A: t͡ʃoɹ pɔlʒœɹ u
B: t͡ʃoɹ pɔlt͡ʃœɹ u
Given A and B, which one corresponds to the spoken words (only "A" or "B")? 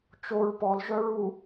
A